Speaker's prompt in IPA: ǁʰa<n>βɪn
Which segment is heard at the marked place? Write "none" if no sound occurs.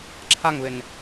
ŋ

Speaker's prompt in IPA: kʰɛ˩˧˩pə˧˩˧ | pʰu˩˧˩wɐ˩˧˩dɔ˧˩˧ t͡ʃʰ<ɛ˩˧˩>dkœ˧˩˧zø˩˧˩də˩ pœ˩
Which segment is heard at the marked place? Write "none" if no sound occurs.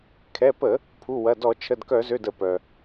ə˩˧˩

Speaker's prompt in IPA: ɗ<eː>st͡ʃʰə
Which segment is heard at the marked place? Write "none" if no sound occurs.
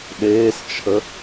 eː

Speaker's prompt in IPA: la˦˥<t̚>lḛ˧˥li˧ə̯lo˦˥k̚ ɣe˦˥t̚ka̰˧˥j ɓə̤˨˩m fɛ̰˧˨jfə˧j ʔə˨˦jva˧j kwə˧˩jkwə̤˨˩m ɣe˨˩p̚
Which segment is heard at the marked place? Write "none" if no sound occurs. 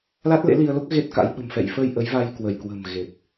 t̚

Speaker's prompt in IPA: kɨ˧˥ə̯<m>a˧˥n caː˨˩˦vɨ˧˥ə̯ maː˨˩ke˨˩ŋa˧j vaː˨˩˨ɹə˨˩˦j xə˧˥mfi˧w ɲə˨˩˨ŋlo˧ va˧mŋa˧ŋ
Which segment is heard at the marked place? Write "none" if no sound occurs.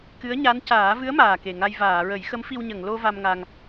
ɲ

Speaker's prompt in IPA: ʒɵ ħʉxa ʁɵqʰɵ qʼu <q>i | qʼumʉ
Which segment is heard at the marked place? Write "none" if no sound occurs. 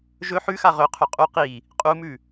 q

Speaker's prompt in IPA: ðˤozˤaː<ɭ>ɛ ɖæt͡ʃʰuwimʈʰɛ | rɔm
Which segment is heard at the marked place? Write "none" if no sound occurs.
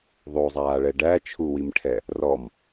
ɭ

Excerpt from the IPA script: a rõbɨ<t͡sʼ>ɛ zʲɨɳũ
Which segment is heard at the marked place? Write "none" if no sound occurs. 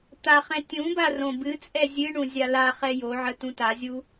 t͡sʼ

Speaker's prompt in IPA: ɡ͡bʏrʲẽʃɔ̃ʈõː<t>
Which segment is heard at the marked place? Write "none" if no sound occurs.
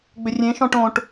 ʈ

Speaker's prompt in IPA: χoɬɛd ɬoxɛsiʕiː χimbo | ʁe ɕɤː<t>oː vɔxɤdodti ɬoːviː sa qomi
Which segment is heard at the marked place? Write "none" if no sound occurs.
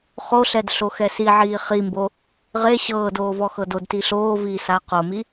d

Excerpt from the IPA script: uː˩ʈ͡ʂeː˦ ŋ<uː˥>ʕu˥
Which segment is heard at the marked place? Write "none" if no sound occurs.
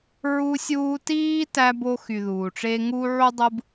uː˥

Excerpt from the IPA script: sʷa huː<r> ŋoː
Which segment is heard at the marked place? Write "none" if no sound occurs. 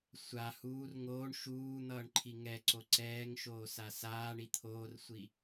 r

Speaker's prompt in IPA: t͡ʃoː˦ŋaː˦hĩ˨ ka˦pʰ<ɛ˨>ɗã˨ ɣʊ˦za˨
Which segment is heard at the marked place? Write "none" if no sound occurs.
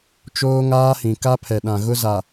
ɛ˨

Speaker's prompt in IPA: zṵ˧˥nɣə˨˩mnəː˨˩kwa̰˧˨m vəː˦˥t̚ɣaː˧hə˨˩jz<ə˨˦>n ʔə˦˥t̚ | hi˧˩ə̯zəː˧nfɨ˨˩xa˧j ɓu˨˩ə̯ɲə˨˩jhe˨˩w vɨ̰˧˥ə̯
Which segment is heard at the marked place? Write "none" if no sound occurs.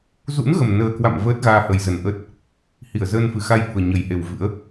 ə˧˩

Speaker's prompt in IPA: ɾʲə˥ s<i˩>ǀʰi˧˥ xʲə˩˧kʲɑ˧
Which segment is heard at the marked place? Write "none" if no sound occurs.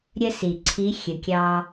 i˩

